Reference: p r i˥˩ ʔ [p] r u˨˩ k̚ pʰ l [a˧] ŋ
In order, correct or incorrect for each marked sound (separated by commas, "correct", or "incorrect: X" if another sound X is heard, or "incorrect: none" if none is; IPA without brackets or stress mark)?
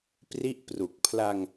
correct, correct